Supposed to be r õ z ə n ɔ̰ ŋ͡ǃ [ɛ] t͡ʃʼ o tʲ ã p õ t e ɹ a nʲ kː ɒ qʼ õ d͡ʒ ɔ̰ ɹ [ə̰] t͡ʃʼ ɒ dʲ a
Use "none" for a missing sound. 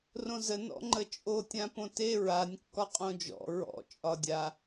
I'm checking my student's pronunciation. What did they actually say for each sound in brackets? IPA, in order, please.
ə, ɔ̰

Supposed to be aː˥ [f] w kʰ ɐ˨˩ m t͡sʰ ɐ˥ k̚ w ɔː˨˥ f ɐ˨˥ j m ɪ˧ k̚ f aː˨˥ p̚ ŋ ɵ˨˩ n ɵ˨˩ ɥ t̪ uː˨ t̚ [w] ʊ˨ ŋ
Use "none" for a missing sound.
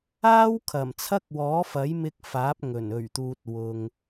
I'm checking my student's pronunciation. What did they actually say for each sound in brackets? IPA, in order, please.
none, w

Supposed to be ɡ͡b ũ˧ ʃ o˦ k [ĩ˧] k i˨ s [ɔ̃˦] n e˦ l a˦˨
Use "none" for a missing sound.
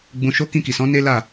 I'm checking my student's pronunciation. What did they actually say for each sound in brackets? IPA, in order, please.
ĩ˧, ɔ̃˨˦

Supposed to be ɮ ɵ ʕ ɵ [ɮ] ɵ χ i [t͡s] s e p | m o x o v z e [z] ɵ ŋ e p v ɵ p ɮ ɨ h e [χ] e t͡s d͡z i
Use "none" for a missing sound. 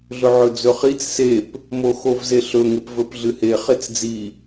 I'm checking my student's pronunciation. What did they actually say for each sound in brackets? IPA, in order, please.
d͡z, t͡s, ɬ, χ

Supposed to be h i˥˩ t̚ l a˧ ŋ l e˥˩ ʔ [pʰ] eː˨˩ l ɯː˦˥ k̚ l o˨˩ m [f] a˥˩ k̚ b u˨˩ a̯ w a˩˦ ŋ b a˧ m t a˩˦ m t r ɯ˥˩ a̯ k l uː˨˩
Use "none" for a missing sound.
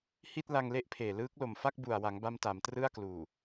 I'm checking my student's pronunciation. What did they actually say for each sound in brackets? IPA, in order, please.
pʰ, f

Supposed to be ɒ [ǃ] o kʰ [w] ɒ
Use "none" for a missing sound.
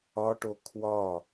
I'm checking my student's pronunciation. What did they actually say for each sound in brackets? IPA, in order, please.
ʈ, w

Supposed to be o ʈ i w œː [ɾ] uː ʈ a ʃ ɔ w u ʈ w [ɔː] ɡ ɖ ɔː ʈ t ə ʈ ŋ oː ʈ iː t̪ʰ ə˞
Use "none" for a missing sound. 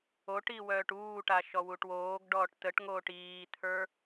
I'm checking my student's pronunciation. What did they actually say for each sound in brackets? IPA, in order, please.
ʈ, oː

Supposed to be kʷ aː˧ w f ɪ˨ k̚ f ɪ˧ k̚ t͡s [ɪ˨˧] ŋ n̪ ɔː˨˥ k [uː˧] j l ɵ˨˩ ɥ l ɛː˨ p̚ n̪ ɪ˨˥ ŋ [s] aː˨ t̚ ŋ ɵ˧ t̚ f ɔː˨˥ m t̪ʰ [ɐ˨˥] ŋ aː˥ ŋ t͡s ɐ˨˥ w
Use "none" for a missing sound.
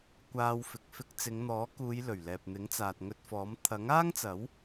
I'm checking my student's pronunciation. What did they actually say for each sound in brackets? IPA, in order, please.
ɪ˨˧, uː˨˧, t͡s, ɐ˨˥

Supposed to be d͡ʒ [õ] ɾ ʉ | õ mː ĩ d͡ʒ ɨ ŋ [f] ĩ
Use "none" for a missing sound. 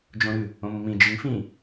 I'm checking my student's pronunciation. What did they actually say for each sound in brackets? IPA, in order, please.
õ, f

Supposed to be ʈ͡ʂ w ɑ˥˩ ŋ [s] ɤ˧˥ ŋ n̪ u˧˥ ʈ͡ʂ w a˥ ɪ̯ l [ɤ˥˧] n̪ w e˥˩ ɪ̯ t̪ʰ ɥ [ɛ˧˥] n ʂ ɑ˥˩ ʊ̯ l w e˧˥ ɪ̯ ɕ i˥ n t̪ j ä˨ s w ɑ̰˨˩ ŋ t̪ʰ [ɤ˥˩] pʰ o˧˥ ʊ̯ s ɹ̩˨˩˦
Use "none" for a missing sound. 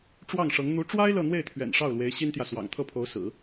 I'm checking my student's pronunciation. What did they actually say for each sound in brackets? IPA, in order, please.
ʂ, ɤ˥˧, ɛ̰˨˩, ɤ˥˩

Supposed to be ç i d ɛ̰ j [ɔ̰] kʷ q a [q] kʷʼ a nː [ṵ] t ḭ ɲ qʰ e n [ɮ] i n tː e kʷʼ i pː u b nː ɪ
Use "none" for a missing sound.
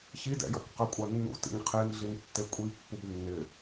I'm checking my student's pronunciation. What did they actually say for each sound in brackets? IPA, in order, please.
ɔ̰, none, ṵ, ɮ

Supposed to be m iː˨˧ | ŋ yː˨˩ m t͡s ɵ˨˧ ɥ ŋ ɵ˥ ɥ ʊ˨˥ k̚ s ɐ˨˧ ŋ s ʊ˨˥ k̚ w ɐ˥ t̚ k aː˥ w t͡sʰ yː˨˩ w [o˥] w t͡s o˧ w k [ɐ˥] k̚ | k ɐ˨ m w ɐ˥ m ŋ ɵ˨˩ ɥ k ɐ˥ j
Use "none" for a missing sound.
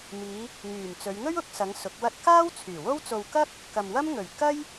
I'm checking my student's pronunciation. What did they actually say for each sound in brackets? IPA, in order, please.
o˥, ɐ˥

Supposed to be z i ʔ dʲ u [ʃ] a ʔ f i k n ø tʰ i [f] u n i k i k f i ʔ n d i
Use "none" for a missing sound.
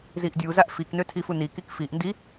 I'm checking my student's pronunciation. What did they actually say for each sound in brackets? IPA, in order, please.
z, f

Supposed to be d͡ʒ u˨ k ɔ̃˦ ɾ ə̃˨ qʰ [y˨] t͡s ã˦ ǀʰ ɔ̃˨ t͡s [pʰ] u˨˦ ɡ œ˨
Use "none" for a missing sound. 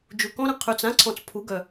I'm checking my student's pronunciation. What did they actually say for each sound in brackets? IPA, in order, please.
y˨, pʰ

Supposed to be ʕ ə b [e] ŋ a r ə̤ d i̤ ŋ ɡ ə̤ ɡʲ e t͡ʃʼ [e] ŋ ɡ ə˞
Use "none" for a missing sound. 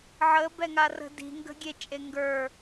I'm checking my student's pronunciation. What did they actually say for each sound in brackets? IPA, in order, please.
ɛ, e

